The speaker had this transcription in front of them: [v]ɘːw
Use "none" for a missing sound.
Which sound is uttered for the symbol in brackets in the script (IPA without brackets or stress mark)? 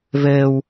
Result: v